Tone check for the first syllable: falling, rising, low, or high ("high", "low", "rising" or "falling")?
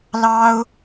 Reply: high